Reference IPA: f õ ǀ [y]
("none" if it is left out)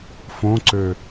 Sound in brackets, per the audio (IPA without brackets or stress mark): ø